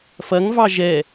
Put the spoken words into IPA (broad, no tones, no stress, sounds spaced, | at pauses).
f ɐ ŋ v ɑ ʒ ɛ